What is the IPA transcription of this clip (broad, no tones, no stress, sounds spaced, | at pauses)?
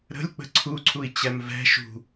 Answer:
ɾ ə̤ lʲ k͡p ə̤ ǀʰ u ǀʰ u i̯ t͡ɕ ɛ m v ɛ̤ ʃ ṳ